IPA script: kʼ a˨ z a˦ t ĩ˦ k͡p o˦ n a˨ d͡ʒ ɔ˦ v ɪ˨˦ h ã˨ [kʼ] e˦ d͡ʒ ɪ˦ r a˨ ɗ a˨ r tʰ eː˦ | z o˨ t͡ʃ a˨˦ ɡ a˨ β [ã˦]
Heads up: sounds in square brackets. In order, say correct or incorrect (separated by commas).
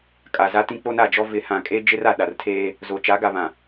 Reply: correct, incorrect